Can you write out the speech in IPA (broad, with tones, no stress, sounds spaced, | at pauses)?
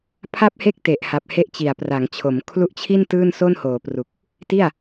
pʰ a˥˩ p̚ h e˥˩ k̚ t e˨˩ ʔ h a˨˩ p̚ h e˦˥ ʔ t͡ɕ i˨˩ a̯ p r a˩˦ ŋ t͡ɕʰ o˩˦ m kʰ l u˦˥ ʔ t͡ɕʰ i˥˩ n t ɯː˥˩ n s o˥˩ n h oː˩˦ p r u˨˩ k̚ | t i˥˩ a̯